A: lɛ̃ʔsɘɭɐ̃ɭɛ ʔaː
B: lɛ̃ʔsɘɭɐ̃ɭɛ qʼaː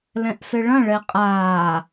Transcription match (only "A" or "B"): B